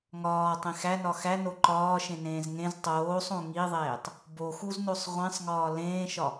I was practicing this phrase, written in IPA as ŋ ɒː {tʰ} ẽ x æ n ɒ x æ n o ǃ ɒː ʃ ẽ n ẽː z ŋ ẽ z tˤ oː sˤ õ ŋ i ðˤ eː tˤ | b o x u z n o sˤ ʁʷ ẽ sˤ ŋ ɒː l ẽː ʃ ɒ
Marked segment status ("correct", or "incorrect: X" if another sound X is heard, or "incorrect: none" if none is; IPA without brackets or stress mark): incorrect: tˤ